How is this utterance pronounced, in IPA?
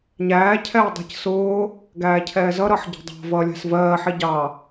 ɲ æː cʰ ɛː dˤ i̤ c s ʊː | ɡ æː cʰ ɛː z ʌ ɾ ʌː ħ ɟ ɛ̤ dˤ ɑ̤ v ʌː lʲ æ̤ s v ɜː ħ i ɟ ɑ

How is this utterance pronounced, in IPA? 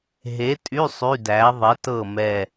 ɦ e˨˥ tʼ y˧˥˧ sˤ y˧˥˧ d æ˨˥ ðˤ e˨˥ t ɤ˦˨ m ɛ˦˨

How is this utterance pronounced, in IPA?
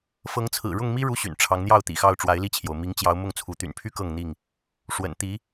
f ɤ˨˦ ŋ t͡sʰ ɹ̩˨˩ ɻ ʊ˥˨ ŋ m i˦ ɻ u˦ ɕ y̰˨˩ n ʈ͡ʂʰ ɑ˨˦ ŋ n̪ j ɑ˥˨ ʊ̯ t̪ ḭ˨˩ x ɑ˥˨ ʊ̯ ʈ͡ʂ w a˨˦ ɪ̯ l i˥˨ t͡ɕʰ j o˩ ʊ̯ m i˨˦ ŋ t͡ɕ j ɑ˨˦ ʊ̯ m ʊ˥˨ ŋ t͡sʰ u˨˦ t̪ y̰˨˩ n pʰ y˦ k ɤ˥˨ ŋ n̪ i˥˨ ŋ | ʂ w ə̰˨˩ n t̪ i˨˦

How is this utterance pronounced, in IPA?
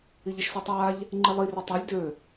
i ʎ i ʃ s ɔ tˤ aː ʎ | ŋ͡ǃ i lˠ i r ø tˤ a lʲ d ø

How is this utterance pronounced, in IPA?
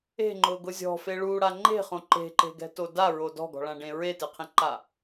e̤ ŋ͡ǃ ʊ ɡ ʊ zʲ ɔ̤ f e ɭ u ɽ a ŋ͡ǃ e̤ χ õ ǃ e̤ ǃ e̤ ɡ ɛ̤ t o d a ɹ o d ɔ̤ ɡ ɔ̤ ɭ ã ɖ ẽ ɹ e t ɪ qʰ ĩ ǃ a

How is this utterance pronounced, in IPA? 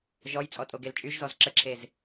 ʒ ɔ j t͡sʼ ɔ tʼ o ɡ e l t͡ʃʼ y ʒ z ɔ z ǁ ə ǁʰ e z

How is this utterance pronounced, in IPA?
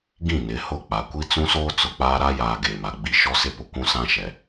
ɡ ĩ˦˨ n ɪ˨˦ h ʊ˦˨ k͡p a˨ kʷ i˦ t͡s ũ˦ s oː˦ t͡s ʊ˨ k͡p aː˦ ɾ a˦ j aː˨ ɡ eː˨ m a˨ ɡ͡b i˦ ʃ ɔ˦ s ɪ˦ p ʊ˨ kʷ ũ˦ s ã˦ ʃ ɛ˨

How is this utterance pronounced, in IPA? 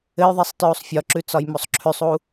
ɘ j ðˤ i sˤ t ɹ u sˤ fʲ ɒ ǁ ʉ t͡s ɒ j m o sˤ ǁʰ ʉ sˤ u

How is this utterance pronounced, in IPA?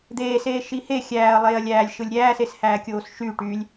d̪ eː s eː ʃ i h e xʲ æː ɐ̯ lˠ eː ɐ̯ lʲ æː lʲ ʃ ɯ lʲ ɾʲ æː s e s h æː kʲ oː s ʃ y ʈ y lʲ

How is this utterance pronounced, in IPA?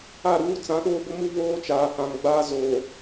a˦˨ ɾ uː˦ t͡s ã˨˦ ɗ oː˦ b ʊ˦ m u˦ β oː˦ t͡ʃ aː˨ h ã˨ ŋ ɡ͡b aː˦ z oː˨

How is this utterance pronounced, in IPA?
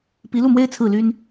p i˧˥ l u˥˩ m w e˥ ɪ̯ t͡sʰ ɹ̩˥˩ l y˥ n

